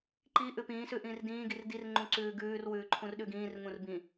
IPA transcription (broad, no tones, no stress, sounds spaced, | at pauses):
ǃ i ʔ ʉ p ĩː s ʉ ʔ ĩː r d ĩː ɡ i r d i r ŋ͡ǃ ũ ǀ ʉː ɡ ʉː r w ʉː ǃʰ ũ r ɗ ʉ ɡ ĩː r ŋ ũ r b ĩ